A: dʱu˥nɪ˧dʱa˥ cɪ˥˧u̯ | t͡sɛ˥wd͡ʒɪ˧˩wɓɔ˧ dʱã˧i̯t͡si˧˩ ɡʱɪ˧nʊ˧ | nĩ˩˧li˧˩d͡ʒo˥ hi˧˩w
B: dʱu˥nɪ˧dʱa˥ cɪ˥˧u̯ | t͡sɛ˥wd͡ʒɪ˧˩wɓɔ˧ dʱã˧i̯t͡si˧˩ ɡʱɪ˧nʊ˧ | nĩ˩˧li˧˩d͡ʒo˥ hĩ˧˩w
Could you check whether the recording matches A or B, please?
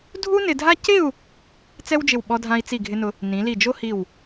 A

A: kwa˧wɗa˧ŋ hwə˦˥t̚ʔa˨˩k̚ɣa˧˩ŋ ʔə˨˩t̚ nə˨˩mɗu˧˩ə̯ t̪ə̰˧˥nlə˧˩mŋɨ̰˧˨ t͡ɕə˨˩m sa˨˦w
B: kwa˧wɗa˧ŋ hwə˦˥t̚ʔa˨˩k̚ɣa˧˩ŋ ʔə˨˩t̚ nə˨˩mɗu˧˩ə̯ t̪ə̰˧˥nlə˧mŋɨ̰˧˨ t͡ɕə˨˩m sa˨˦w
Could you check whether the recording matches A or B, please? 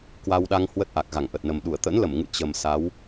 A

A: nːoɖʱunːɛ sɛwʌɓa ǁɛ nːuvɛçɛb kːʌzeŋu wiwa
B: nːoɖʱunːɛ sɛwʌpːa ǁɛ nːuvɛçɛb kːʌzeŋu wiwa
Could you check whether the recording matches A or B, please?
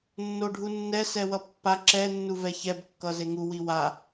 B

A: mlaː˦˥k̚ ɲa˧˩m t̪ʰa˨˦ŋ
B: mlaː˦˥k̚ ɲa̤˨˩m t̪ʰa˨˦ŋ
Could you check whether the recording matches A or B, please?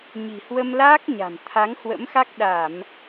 B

